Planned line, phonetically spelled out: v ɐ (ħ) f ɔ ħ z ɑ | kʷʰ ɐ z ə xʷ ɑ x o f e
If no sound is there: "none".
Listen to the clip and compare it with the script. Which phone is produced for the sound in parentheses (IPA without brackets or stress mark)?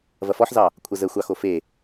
none